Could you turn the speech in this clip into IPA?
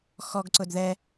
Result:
xɔɡǀʊd ðɛ

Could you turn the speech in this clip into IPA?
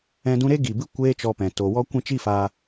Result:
ɛ̃˧dũ˧ɾe˦ ɡi˨bɨ˦ kʷeː˦t͡ʃɔ˧pɛ̃˨ to˨wɔ˦ kʷɛ̃˦t͡ʃi˦faː˧

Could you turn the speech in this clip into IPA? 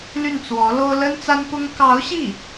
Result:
ly˥˩nt͡swɔ˧˥lo˥ʊ̯ lə˥nt͡sa˥npʊ˥ŋ kɑ˧˥ʊ̯ɕi˥˩

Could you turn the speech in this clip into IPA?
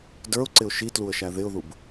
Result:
də˞ʊ̯ǀɪʊ̯ ʃitluə̯ʃæ ðɪʊ̯ðub

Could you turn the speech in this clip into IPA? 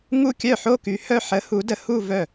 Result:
ŋu˥˩kʲœ˥˩ħo˥˧ky˨˥ hœ˥˧ ħə˨˥ hu˨˥də˨˥ hu˥˧vœ˥˩

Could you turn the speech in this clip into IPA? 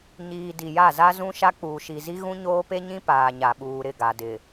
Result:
ɲiː˨ di˨ja˦˨ za˦zũ˦ʃa˦ k͡puː˨ʃi˨zi˦ ɣũ˦ɲoː˦pe˦ɲĩ˦ paː˨ɲa˨ɓuː˨ ɾɪ˦˨ɡa˨dɪ˨

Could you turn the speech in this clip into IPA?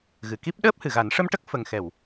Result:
ɣɨ˨˩ki˦˥p̚ ɗəː˦˥p̚hɨ˨˩˨ɣa˨˩˦n ʂə˧mʈə˦˥k̚ fə˨˩ŋxɛ˨˩˨w

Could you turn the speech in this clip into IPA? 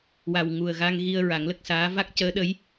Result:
wa˨˩wŋu˨˩ə̯ɣa˧ŋ ɣi˧ə̯ ɹa˨˩˦ŋlə˦˥k̚saː˧˥ va˦˥k̚cəː˧˥ɗə˧˥j

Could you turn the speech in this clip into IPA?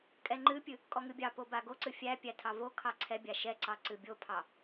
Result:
kʼɛŋ͡ǃɨpʲɨ | kʼɔŋɨbʲɑpo baɡoǀɨ fʲæpʲæ tʰɑvokʰɑ ǀʰɛbʲa ʃɛǀɑ ǀɨbʲopʰɑ

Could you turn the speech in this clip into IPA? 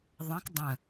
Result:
ðˤɑ̃k dˤə̃

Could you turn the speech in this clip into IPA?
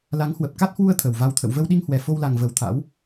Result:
la˨˦ŋhwə˨˩p̚ ka˦˥t̚hwu˧ə̯ t̪ʰə˨˩wva˧wt̪ʰə̰˧˨w və˧wɗi˧ŋhwɛ˨˩ fo˧wla˨˩ŋ və˧˩wt̪ʰa̰˧˥w

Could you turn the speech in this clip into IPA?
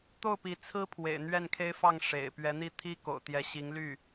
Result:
t̪o˥˩ʊ̯pi˧˥t͡sʰɹ̩˥ pʰwḛ˨˩ɪ̯n̪ɥɛ˥˩nkʰe˥ɪ̯ fɑ˥˩ŋ ʂḛ˨˩ɪ̯ pɥɛ˧˥n̪i˥˩ t̪ʰi˥ko̰˨˩ʊ̯t̪jɛ˧˥ ɕi˧˥ŋ ly˥˩

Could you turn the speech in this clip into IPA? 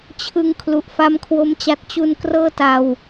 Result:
t͡ɕʰɯ˧ŋ kʰlu˨˩ʔfa˦˥m kʰwo˦˥mt͡ɕa˦˥t̚ t͡ɕu˧n krɤː˥˩ta˧w

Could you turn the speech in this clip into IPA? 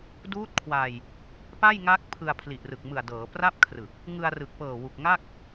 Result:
duː˦˥t̚kʰwa˧j | pa˥˩jŋa˦˥k̚pʰɯ˧a̯ pʰli˨˩ʔrɯ˨˩k̚mɯ˨˩a̯dɤː˩˦ pra˥˩p̚kʰrɯ˨˩k̚ | ŋɯ˧a̯rɯ˨˩k̚pɤː˨˩ wu˨˩k̚ŋa˥˩k̚

